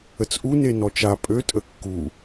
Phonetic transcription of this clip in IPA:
ə t͡s ʔ u n e n ɔ t͡ʃ a pʼ ø tʼ ə kː u

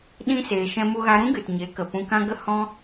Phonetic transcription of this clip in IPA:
ɗ ĩ˦ s eː˧ ʃ ɛ̃˦ m u˦ ɣ a˧ ɾ ũ˦ ɡ ɨ˨ t ɲ e˨˦ k ə˨ p ũ˧ k ã˦ ɡ ə˦ h ɔ̃˦

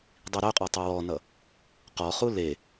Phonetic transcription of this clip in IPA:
dˤ i ɾ œ qʼ ɔ tˤ e w ɔ n ʌ | q ɔ χ u l e

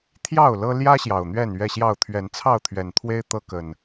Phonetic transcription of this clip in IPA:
t̪ʰ j ɑ˥˨ ʊ̯ l ɤ˦ l j ä˦ ɕ j ɑ˨˩ ʊ̯ n̪ ɥ ɛ˥˨ n ɥ ɛ˥˨ ɕ j ɑ˥˨ ʊ̯ t̪ʰ ɥ ɛ˨˦ n t͡sʰ ɑ˥˨ ʊ̯ t̪ʰ ɥ ɛ˨˩ n t̪ʰ w e˦ ɪ̯ t̪ ɤ˦ k ə˨˩ n

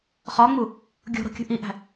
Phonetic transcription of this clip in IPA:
χ ɒ ŋ͡m u | ɡʲ o̤ ɾ o̤ kʲ ṳ ʔ i ʔ æ̤

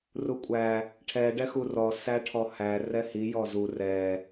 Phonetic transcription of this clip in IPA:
r u kʷʼ æ | ʈʰ ɛ ɖ ɛ x u r ɔ s æ ʈʰ ɔ h æ r ɛ h i j ɔ z u r ɛ

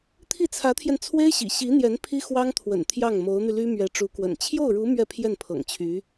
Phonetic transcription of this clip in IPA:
t̪ʰ i˥˩ t͡sʰ ä˧˥ t̪ʰ j ɛ˧ n t͡sʰ w e˥ ɪ̯ ɕ ḭ˨˩ ɕ i˧˥ n̪ j ɛ˧˥ n pʰ i˥ x w ɑ˥ ŋ t̪ʰ w ə̰˨˩ n t̪ʰ j ɑ˥˩ ŋ m o˧˥ ʊ̯ n̪ y˧ l y˥ m ɥ ɛ˧˥ ʈ͡ʂ u˧˥ k w ə̰˨˩ n t͡ɕʰ j o˥˩ ʊ̯ ɻ u˧˥ m ɥ ɛ˥˧ pʰ j ɛ˥˩ n pʰ ɤ̰˨˩ ŋ t͡ɕʰ y˧˥

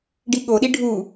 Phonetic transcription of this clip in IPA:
ɖ i ɠ o ɗ i ɖʱ u

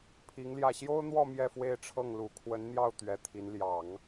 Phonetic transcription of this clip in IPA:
pʰ i˧˥ ŋ l j ä˥˩ ɕ j o˥ ʊ̯ n̪ w ɔ˥˧ m j ɛ˥˧ f w e˥˧ ɪ̯ ʈ͡ʂʰ ɤ˥˩ ŋ l u˨˩ kʰ w ə˧˥ n n̪ j ɑ˥˩ ʊ̯ t̪ ɥ ɛ˧˥ t̪ʰ i˧˥ n l j ɑ˨˩˦ ŋ

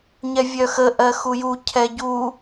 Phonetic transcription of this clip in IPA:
ɲ ɛ vʲ œ x ə ʔ ɜ x u j u cʰ ɛ ɟ u

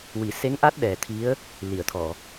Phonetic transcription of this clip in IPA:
w i˨˩˨ s e˧˥ ŋ ʔ a˦˥ t̚ ɗ ɛ˨˩ t̪ʰ i˧˥ ə̯ | l i˨˩˨ ə̯ t̪ʰ ɔ˨˩˨

